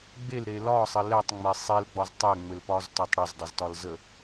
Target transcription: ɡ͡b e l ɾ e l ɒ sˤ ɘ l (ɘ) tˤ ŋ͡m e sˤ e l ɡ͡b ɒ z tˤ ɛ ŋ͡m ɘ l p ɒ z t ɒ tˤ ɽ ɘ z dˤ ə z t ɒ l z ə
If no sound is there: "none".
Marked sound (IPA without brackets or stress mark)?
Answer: ɛ